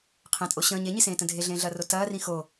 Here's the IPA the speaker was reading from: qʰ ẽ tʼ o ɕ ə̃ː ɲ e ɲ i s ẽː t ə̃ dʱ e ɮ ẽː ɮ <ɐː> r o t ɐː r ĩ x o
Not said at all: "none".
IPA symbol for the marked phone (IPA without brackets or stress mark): ɐː